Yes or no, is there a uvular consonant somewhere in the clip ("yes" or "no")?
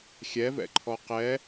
yes